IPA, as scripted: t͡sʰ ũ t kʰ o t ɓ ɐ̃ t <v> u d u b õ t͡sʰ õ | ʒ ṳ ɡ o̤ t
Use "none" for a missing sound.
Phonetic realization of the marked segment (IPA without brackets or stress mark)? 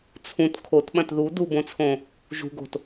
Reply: ð